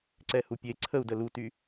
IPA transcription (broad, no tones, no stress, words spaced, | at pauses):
ǀɛhupʲe ǀʰəu̯də luty